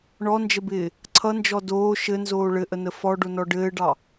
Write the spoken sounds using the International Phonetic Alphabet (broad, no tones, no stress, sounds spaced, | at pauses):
ɳ ɔ n d͡ʒ ə b ɪː | ǀʰ ʌ n d͡ʒ ɔ d oː ʃ ɘ n z oː ɭ ɘ ʔ ə n ə f ɔ ɖ o n ɔ ɖ ɘː ɖ ɑ